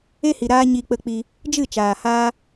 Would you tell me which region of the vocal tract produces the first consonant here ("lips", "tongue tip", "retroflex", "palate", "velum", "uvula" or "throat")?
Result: throat